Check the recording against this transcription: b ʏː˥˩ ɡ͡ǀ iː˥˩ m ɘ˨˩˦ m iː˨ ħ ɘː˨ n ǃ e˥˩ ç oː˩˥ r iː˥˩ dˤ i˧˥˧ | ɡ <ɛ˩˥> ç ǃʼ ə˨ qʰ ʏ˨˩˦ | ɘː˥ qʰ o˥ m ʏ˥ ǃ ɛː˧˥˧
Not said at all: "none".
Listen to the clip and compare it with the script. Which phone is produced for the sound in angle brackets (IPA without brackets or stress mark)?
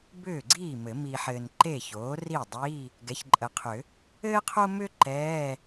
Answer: ɛ˩˥